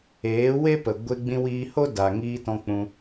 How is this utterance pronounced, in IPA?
eː˨˦we˦ pə˨ɡʷe˧ɡ͡bĩ˧ wiː˧ ho˦da˨ŋiː˧tɔ̃˧ k͡pũ˧

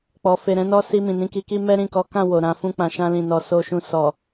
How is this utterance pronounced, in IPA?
k͡pɔ˨ fe˨ ɾɛ̃˧nɔ˧ si˧ mĩ˨nĩ˧ki˧ki˦ mɛ˦ɾĩ˦˨ kɔ˨˦kã˦˨ wo˨ɾã˨˦ fũ˧k͡pã˨ʃã˧lĩ˨ nɔ˧so˧ʃũ˧ sɔ˨

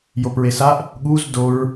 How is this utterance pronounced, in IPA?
jopɹesaʔ | ɠuz doɹ

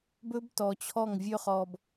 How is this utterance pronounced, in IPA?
bɵ˦btɔ˨t͡ɕʰɔ˦˨ŋ vʲɵ˦χɔ˨b

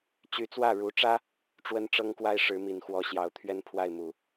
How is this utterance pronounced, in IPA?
t͡ɕy˧˥t͡swä˥˩ɻu˧˥ʈ͡ʂä˥ | ʈ͡ʂwə˥nʈ͡ʂɤ˥ŋkwa˥ɪ̯ ʂɻ̩˧˥mi˨˩nxwɔ˧˥ɕjɑ˧˥ʊ̯ t̪ʰɥɛ˥˧npʰwa˥˩ɪ̯mu˨˩˦

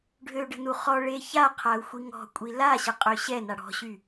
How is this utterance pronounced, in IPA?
ɖʱøɖə̤nu χɔ ɭeça qʰau̯xʷiŋɔ̤kʷʼi laɕə qʼøɕɛ naɽɔ̤ɕy

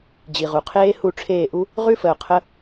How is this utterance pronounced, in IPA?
d͡ʑi˨ʁu˨ qʰeː˦hu˦˨ʈ͡ʂʰeː˦˨ʔu˦ | ʁʉ˦fə˨ʊ̯ qʰə˦

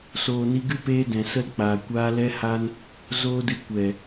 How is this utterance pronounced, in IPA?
soː˨ni˧ɡɨ˦ peː˧ dɛ̃˨sə˦lk͡paː˨kʷaː˦ lɛ˦ha˦n | zoː˦dɨ˧ kʷɛ˨

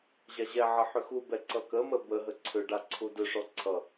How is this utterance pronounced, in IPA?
ʑaʑɛʕʌ ħʏxubɛ ǀʌkəmə bəɦə ǀʰʏɖa ǀʰudʏʂɔ ǀʰʌ

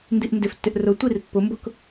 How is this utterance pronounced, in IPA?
ndiʔndɪftːɪʔ rʊtʷir pːʊmbʊk

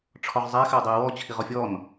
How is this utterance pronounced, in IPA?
ʈ͡ʂʰɔʁzˤɛ xɘwdˤiə̯wɔ t͡ɕʰiʁɔfʲɔn

